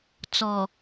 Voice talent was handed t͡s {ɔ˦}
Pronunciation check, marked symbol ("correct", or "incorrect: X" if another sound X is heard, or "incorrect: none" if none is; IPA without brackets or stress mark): incorrect: ɔ˨